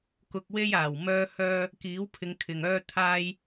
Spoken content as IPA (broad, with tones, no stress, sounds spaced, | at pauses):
k ʊ˧ k̚ w e˥ j aː˨˩ w m œː˥ h œː˥ | k iː˨˥ w pʰ ɪ˨˧ ŋ kʰ ɪ˨ ŋ œː˥ t̪ʰ aː˥ j